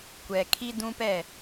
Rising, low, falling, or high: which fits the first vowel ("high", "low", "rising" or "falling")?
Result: low